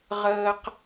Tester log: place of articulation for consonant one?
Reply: uvular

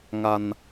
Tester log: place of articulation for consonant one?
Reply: velar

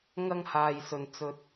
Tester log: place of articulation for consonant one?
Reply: velar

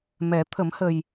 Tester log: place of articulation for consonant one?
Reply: labial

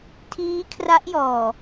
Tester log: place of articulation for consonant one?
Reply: alveolar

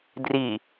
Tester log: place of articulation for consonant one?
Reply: alveolar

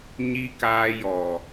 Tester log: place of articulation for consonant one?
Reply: palatal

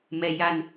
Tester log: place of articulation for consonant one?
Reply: labial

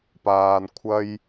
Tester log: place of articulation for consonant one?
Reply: labial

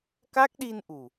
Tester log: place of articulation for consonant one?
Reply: velar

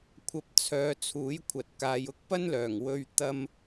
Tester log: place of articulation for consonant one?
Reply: velar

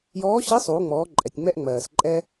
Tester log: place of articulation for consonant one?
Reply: palatal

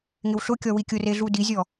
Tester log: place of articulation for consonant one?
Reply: velar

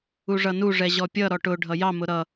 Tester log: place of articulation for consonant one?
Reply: retroflex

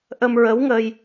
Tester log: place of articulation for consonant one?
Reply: glottal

